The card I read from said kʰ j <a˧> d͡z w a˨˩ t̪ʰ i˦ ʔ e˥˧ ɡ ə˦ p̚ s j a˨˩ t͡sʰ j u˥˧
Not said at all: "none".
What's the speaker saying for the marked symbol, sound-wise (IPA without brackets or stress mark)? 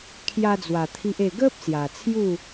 a˧